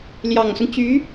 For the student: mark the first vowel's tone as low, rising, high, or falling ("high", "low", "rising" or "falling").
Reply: low